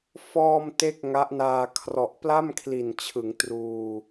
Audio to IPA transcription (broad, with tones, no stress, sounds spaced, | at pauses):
f ɔː˧ m t e˥˩ k̚ ŋ a˦˥ ʔ n aː˧ kʰ r ɔ˨˩ ʔ p l a˥˩ m kʰ l i˨˩ n t͡ɕʰ ɯ˩˦ ŋ t r uː˧